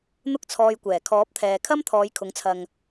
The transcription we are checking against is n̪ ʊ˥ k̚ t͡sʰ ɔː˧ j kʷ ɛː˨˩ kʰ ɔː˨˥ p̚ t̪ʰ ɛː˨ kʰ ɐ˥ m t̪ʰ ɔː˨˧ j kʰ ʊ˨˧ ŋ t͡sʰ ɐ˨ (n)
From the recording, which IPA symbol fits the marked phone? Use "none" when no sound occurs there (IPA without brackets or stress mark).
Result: ŋ